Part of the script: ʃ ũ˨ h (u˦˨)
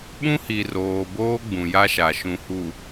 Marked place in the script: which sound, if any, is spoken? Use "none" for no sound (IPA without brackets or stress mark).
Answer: u˨